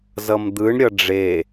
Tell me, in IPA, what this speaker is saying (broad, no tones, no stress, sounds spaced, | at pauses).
z ʌ m d̪ ɯ ɳ ɾʲ ʌ ɖ͡ʐ e